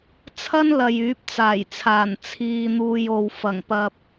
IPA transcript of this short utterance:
t͡sʰɐ˥nlɐ˨j yː˨˥p̚t͡saː˨˩jt͡sʰaː˨˩n t͡sʰiː˨n̪uː˨j o˨wfɐ˨˩ŋpɐ˨p̚

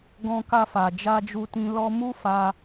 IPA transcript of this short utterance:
ɡɔ̃˧ka˧fa˨ d͡ʒa˧d͡ʒu˧tĩ˧ lɔ˧mu˦ fa˧

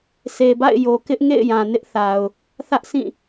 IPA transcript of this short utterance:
sʰe˨ba̰˦˨ɪ̯jo˨kɪ˦ʔ ŋḛ˦˨ɪ̯ jã˨nɪ˦ʔθa˨ʊ̯ | θä˦ʔsĩ˦˨

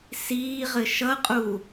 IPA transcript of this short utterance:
siːʁɘ ʃʌqʼu

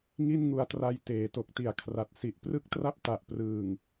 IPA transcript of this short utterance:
ŋi˥˩nŋu˧a̯tra˧j teː˩˦to˨˩k̚ti˨˩a̯kʰra˨˩t̚ si˨˩ʔprɯ˥˩k̚tra˥˩p̚ ta˨˩ʔprɯː˨˩ŋ

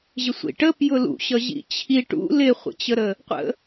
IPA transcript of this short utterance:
ʑɪsʷḭʈə pjʊlṵɕʌ ʑḭt͡ɕʰi ʈṵ lɪχʷə̰t͡ɕəɾə | qʷə̰

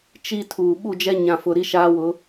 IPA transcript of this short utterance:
t͡ʃi˨ tʰuː˨ ɓu˦˨d͡ʒɛ˦ ɲã˨fʊ˨ ɾi˦ ʃaː˦wʊ˨˦

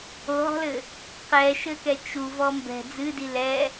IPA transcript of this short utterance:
oɦɔ̤lɘ | qɛʃɘkɛ t͡ʃuvɔ mbɛ̤ d͡zɨdi lɛ

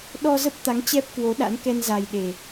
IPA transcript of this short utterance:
ɗɔ˧zə˦˥p̚t̪a˨˦ŋ t͡ɕɛ˦˥p̚kwo˨˦ɗa̰˧˥nkɛ˧n za˨˩j ɗe˨˩

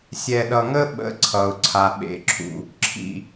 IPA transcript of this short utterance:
sʲɛ˨ɗʌ˨ŋə˦ɓə̰˨˦ ǀʰʌ˨ʊ̯ǀʰa˨ ɓḛ˨ǁʰṵ˨ | ǁʰḭ˨

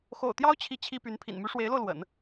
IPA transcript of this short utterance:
xo̰˨˩ʊ̯t̪jɑ˥ʊ̯ t͡ɕʰi˥˩t͡ɕʰi˥py˧˥n pʰḭ˨˩nmy˧˥ʂwe˧˥ɪ̯lo˧ʊ̯ lwə̰˨˩˦n

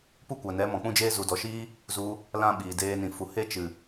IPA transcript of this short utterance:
pu˦kʷa˨nɛ˨˦ mɔ̃˨k͡pũ˦d͡ʒeː˦ zu˨dɔ˨ʃiː˦ | zu˧ | lã˦ɓiː˨deː˧nĩ˨ fu˨he˦ t͡ʃɨ˨

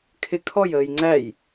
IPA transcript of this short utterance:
kʰɪ kʰɔjəːj ŋ͡ǀæj

